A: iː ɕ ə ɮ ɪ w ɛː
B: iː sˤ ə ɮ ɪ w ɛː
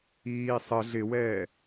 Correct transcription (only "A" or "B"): B